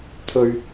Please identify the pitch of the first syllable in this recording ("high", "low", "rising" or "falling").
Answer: low